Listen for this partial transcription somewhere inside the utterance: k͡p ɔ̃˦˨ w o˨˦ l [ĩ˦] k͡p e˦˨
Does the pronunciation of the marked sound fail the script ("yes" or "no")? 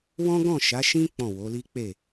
yes